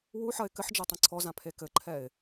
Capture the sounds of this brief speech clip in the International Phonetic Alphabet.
wuħɐɪ̯ kɘħd͡ʒɛ tˤɐ̃ǀʰɔzã pʰekɘǃʰɛɪ̯

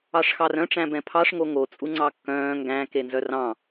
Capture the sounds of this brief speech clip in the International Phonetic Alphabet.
ɑʂxɑrœ̃ ʈ͡ʂæ̃bɛ̃pʰɑʂ ŋoŋo t͡sʼuŋ͡ǀɑkːœ̃ː ŋɡæ̃ kenzœrɑ̃

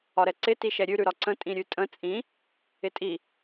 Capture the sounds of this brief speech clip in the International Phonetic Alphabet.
ɒɾɛǀɪ tiʃɛɾʲʉ ɾʉɾɒǀə̃ tʼĩɾʲʉtʼə̃ t͡sʼĩ | ɪtʼi

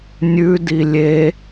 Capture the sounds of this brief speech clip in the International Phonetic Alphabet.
nʲʉdi lʲe

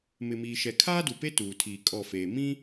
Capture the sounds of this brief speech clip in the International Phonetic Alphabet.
mɪ˨miː˨ʃɛ˨ kʰaː˦du˨pe˦ tuː˨tʰiː˨ kʼɔ˦˨feː˨ mĩ˦

